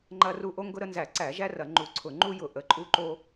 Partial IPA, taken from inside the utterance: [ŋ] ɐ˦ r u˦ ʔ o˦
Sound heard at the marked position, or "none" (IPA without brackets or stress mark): ŋ͡ǃ